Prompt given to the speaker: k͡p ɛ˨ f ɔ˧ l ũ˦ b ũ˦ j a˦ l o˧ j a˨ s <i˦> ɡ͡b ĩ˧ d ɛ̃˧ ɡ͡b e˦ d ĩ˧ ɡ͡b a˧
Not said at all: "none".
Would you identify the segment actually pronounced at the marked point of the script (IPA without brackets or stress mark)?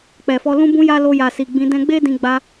i˨